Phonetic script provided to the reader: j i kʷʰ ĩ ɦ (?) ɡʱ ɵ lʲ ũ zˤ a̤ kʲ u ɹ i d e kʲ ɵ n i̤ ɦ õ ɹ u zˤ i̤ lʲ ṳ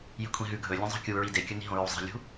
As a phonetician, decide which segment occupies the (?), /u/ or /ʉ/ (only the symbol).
ʉ